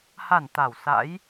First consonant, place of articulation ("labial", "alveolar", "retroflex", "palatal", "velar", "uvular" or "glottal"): glottal